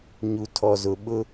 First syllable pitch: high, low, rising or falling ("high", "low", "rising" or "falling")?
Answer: low